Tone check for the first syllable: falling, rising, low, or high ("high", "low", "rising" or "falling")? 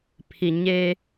low